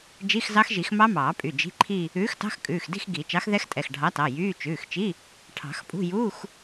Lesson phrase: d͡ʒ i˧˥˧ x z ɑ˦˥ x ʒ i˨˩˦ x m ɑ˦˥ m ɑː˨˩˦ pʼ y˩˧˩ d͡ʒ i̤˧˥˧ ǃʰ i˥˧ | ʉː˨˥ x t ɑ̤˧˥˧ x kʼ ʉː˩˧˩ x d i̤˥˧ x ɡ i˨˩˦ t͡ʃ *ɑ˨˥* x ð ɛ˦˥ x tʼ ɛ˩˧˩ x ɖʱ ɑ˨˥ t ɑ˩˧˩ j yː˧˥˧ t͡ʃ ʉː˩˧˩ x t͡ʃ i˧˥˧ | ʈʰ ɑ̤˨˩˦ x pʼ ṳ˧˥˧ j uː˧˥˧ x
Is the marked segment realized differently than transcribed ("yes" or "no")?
no